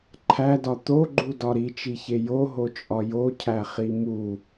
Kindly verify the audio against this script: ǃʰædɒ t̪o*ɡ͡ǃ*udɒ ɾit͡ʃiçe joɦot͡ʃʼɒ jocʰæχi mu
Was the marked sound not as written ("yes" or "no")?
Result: no